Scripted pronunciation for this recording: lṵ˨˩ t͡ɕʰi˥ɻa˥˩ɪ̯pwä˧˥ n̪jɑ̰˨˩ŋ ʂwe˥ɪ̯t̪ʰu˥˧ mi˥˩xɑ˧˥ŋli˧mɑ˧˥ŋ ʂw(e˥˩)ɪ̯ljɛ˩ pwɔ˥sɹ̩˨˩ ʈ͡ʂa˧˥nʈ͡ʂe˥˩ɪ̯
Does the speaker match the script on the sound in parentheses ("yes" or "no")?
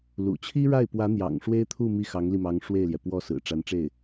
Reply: yes